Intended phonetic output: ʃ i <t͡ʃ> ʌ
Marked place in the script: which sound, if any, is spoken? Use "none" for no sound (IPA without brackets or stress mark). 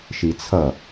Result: t͡sʰ